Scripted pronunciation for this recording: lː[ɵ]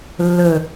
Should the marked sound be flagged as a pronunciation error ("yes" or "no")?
no